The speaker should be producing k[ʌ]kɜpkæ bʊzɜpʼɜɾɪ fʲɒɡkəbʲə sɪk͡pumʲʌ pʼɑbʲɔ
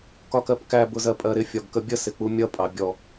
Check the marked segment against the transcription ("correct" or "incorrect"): incorrect